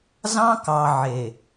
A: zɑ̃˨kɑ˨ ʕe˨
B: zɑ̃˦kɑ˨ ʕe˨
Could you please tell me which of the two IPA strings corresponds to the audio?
B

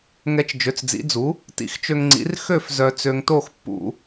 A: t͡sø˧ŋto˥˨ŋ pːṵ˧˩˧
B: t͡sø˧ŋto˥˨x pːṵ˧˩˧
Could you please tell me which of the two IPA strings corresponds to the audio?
B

